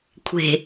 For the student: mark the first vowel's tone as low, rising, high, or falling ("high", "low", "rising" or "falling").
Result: low